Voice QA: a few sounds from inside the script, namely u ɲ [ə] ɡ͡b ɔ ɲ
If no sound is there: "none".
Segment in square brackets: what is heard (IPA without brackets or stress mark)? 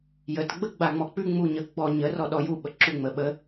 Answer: ə